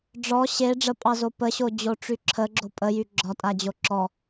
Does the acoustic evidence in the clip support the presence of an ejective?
yes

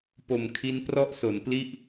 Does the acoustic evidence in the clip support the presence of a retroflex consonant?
no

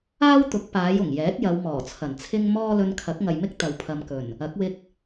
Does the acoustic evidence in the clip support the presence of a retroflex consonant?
no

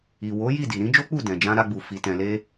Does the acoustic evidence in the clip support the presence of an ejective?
no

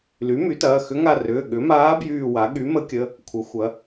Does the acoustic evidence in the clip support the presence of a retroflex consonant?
no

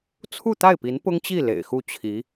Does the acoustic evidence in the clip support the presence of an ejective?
no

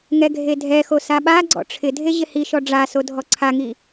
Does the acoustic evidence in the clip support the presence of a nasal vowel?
no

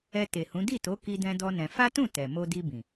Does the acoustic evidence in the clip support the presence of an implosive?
no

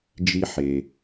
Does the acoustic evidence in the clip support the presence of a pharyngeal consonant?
yes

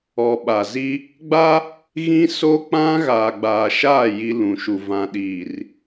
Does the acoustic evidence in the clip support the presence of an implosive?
yes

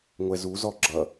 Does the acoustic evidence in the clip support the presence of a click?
yes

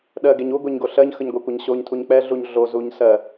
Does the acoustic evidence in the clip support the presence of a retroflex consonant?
no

